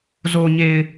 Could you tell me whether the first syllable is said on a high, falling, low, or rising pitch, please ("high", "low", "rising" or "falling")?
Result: low